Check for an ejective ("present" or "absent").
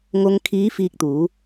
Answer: absent